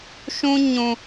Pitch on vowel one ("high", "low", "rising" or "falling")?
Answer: high